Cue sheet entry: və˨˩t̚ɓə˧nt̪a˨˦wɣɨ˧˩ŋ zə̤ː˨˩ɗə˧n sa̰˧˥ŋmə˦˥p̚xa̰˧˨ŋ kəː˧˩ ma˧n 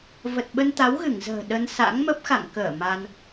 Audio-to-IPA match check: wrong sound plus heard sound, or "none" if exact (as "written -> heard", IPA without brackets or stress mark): none